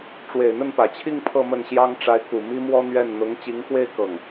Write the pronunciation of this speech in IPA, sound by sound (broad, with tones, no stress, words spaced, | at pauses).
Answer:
ʈ͡ʂwe˨˩ɪ̯n̪ə˥˩npä˨˩t͡ɕʰi˥˧ŋ pʰɤ˥˧mə˥˩nɕjɑ˥ŋ ʈ͡ʂa˧˥ɪ̯ku˨˩ mi˥mwɔ˥n̪ɥɛ˥˩n n̪ʊ˧˥ŋt͡ɕi˧˥ŋxwe˥˧ɪ̯ kɤ˥˩ŋ